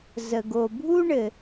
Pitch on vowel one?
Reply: low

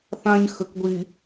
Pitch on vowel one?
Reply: high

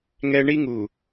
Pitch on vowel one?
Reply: high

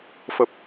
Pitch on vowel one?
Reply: low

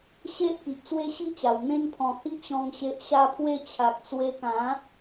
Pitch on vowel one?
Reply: high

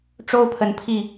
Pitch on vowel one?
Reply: high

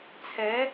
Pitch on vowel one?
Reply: rising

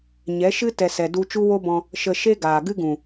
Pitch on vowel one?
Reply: rising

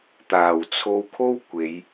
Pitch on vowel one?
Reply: low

